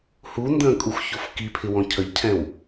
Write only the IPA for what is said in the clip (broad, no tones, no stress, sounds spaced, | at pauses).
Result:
h u n d ə̃ː kʼ u x ç o f k i pʰ ɪ w ɔ̃ cʰ ə ʎ cʰ ɛ̃ w